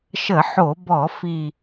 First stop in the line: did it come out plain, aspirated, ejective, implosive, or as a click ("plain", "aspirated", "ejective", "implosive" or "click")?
plain